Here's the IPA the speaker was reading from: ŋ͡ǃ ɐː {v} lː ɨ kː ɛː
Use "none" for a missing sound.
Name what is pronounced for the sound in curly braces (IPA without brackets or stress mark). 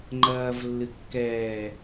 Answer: v